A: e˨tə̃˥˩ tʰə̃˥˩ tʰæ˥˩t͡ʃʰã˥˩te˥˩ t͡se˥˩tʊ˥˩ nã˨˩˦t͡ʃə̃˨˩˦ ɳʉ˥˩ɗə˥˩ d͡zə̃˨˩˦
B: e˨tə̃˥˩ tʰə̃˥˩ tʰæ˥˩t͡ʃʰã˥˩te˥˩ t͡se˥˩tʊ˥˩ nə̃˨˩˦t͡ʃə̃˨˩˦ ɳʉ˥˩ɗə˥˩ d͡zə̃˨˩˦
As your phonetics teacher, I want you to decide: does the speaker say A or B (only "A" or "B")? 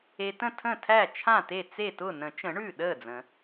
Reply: B